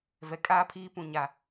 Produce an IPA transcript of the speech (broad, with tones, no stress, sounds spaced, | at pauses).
v ɛ˨ kʼ aː˦ pʰ iː˦ p ũ˨ ɲ a˨